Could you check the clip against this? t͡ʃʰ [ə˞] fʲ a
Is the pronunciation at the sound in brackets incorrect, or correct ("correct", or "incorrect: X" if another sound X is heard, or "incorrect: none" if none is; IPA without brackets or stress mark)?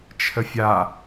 incorrect: ə